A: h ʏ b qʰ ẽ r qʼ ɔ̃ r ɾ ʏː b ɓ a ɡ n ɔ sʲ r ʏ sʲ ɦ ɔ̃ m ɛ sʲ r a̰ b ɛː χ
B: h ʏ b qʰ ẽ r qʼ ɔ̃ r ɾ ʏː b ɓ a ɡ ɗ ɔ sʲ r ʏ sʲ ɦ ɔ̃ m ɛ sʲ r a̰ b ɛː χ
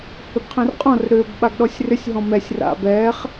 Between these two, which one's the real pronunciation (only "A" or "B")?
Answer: B